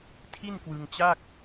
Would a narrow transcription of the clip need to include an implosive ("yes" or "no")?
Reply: no